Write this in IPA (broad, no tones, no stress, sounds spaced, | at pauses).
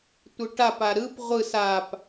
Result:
tʷ ɯ ʈ a p a ɾ ɯ p ʁʷ ɯ s a p